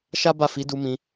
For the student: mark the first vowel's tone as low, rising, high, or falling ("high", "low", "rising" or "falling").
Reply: high